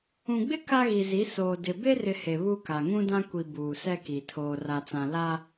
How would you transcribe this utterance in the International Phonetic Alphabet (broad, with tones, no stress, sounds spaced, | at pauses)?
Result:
ũ˨ ɡ͡b ɪ˦ k a˦ ɣ i˨ z i˨˦ s oː˨ d ɪ˨ b e˦ r ɪ˨ h e˨ β u˦ k a˨ ŋ ũ˦ d ã˦ kʷ i˨ b uː˨ s ɛ˦ k i˨ tʰ oː˨ r a˨ t͡s ã˨ l a˦